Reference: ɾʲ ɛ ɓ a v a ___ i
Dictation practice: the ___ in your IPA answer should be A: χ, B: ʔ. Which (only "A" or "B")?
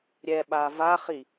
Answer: A